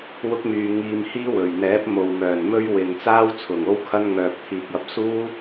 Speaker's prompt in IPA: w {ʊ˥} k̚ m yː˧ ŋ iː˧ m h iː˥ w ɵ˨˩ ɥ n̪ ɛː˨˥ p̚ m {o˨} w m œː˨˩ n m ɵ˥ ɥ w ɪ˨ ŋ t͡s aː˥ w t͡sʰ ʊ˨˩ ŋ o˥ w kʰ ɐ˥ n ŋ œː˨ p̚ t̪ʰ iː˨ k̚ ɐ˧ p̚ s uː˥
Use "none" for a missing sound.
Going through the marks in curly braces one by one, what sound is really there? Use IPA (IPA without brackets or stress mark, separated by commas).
ʊ˥, o˨